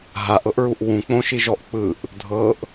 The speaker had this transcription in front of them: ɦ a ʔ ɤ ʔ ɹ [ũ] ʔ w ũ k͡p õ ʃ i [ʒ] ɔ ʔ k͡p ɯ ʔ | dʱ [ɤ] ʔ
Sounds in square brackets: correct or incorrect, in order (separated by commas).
incorrect, correct, correct